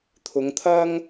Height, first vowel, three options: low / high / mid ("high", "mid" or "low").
high